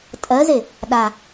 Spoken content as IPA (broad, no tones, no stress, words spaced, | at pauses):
tʼɜze | ɗa